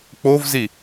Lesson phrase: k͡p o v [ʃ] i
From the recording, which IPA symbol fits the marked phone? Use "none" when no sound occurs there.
z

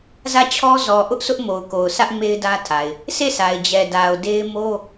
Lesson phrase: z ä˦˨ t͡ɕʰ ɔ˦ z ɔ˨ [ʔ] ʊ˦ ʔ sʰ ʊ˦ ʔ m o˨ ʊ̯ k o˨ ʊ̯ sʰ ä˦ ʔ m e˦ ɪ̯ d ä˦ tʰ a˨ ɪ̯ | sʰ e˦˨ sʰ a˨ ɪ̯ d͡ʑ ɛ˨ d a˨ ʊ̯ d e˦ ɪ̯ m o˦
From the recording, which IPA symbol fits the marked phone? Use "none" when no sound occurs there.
ʔ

